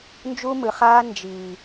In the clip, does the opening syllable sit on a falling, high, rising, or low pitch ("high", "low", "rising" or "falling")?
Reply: high